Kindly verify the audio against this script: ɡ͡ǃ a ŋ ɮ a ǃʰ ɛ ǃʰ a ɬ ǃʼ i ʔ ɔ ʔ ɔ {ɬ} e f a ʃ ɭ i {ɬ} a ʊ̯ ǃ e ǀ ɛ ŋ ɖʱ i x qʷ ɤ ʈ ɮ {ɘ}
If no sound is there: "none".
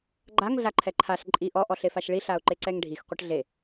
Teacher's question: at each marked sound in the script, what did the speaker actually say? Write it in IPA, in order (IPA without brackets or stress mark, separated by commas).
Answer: ɬ, ɬ, e